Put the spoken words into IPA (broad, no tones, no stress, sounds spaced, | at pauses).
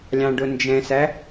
lʲ ɑ̃ ɖ ʊ n d͡ʒ ɛ̃ s æ